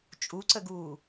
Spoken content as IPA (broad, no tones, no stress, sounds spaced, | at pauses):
t͡ʃʼ u ǀ ə ɡ uː